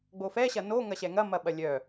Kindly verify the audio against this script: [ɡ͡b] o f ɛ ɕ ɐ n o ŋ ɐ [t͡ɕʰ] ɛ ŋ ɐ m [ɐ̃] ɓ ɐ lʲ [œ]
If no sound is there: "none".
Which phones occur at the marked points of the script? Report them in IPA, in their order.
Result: ɡ͡b, ɕ, ɐ, œ

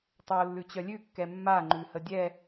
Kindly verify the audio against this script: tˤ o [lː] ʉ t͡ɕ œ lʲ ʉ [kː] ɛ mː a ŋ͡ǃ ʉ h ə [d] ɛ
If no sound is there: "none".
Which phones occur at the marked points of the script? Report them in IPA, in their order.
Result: lː, kː, dʲ

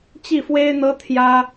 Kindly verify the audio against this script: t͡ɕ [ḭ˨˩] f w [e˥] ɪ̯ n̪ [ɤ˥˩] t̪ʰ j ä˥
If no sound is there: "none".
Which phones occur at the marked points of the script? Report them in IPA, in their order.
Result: i˥˩, e˥, ɤ˥

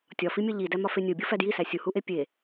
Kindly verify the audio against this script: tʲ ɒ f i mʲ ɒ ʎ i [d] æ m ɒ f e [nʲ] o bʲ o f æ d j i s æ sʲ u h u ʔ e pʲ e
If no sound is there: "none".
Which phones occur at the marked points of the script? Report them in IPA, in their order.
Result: d, nʲ

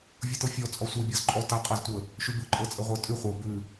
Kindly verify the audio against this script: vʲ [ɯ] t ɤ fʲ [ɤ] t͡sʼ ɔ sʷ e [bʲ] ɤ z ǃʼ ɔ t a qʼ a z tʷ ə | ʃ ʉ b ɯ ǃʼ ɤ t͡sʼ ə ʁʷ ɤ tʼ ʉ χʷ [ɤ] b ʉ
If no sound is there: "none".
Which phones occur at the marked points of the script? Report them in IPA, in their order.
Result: ɤ, ɔ, bʲ, ɤ

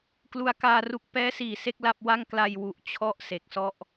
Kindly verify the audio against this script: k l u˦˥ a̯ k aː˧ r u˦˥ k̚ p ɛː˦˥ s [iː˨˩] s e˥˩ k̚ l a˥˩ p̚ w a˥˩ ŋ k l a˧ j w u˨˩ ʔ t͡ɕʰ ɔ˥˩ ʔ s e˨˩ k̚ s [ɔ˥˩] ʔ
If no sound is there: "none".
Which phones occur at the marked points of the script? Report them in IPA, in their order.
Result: iː˨˩, ɔ˥˩

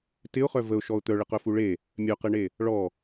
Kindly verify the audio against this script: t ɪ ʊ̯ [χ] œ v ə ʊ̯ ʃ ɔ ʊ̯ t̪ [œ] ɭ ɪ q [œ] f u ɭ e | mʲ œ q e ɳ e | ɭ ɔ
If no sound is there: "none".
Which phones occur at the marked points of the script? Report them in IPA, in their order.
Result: χ, œ, œ

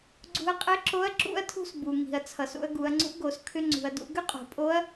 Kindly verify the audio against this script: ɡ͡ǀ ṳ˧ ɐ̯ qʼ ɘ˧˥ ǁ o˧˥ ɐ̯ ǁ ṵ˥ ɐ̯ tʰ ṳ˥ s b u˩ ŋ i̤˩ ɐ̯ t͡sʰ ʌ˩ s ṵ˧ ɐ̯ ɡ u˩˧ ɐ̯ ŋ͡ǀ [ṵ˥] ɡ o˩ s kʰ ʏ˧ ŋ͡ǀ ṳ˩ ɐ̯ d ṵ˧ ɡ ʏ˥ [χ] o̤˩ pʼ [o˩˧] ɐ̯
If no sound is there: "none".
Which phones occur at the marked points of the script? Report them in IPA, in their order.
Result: ṵ˧˥, qʼ, o˧˥

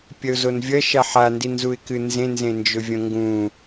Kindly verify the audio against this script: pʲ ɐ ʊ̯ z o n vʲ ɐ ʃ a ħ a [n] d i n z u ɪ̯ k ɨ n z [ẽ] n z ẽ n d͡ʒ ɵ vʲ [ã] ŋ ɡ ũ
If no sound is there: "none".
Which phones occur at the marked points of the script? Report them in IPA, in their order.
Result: n, ẽ, ɐ̃

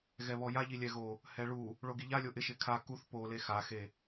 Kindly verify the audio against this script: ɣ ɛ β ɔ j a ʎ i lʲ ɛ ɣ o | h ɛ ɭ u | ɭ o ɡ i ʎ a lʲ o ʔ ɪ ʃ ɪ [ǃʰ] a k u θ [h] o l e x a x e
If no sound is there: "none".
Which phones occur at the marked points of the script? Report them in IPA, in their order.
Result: kʰ, p

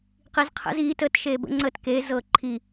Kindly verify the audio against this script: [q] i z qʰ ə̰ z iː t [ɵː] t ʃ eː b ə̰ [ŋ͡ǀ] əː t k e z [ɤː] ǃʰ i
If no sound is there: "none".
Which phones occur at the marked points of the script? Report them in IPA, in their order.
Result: q, əː, ŋ͡ǀ, ɤː

